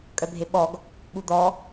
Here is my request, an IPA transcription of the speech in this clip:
kʼ œ bʱ e ɓ ɔ ɡ | ɓ u d̪ ɔ

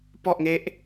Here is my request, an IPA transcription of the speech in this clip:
p ɔ˥˩ ʔ ŋ e˦˥ ʔ

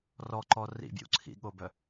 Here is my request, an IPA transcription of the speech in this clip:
r ɔ ǃ ɔ r ḭ bʲ ṵ ǀʰ ḭ ɠ o b œ

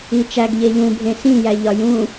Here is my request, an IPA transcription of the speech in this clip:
i t͡ʃ æ ɡ ʎ e ʎ ũ bʱ ẽ s ĩ j æ ʎ ɒ j ũ

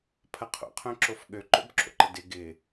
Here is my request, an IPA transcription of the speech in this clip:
pʰ ɐ qʰ o̰ qʰ œ̃ ǁ o f ɠ ø ǃ o̰ b ǁ o̰ ǃ ə d ɪ ɡ ɪ

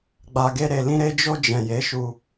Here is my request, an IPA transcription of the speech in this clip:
ɡ͡b a˨ ɡ e˧ ɾ e˨ l ĩ˧ ɾ e˧ d͡ʒ o˧ d͡ʒ ɛ̃˨ j e˨˦ ʃ u˧

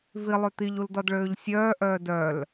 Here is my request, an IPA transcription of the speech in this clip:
v i lˠ ø t̪ i ʎ u l d ɔ d ɭ øː ʎ sʲ œː ʔ œː d œ l

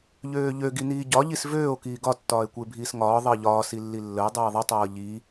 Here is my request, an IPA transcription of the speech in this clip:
ʎ øː ʎ ø ɡ i n iː ɟ ɒ ʎ i s v øː o̯ k iː ɡ ɒ tː ɒː e̯ kʷ ə e̯ bʱ iː s ŋ ɒː ðˤ əː ʎ ɒː s i lː i lː ə e̯ dˤ iː ðˤ ə tˤ ɤː ʎ i

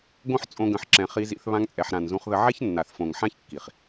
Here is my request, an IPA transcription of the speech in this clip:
ɡ õ˦ ħ t͡sʼ õ˧ ɡ ə̃˨ ħ ǁ ɛ̃˨ χ i˧ z ḭ˧ θ β ã˧ ŋ t͡sʼ ɛ˨ ħ ɾ ã˨ n z ũ˧ χ ð ə˧ ʕ ɛ˦ ç nː a˨ θ f õ˨ ŋ ħ ã˦ ç kː i˨ χ

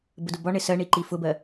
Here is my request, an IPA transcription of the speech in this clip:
b ə d ʊ b ɒ ɳ ɪ s ɜ ɳ i ǃ i f ʊ b ɜ

